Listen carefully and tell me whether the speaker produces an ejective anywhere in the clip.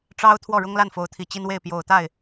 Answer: no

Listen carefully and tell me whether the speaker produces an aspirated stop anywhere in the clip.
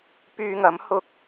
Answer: no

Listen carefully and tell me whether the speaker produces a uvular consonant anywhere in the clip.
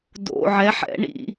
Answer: no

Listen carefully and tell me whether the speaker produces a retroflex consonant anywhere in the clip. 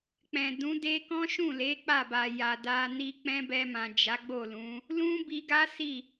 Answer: no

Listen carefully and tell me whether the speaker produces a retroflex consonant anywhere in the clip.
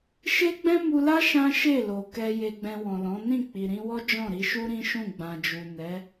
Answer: no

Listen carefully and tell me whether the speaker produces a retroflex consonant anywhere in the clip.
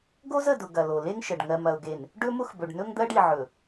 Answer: yes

